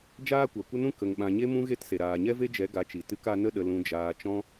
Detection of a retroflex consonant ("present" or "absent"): absent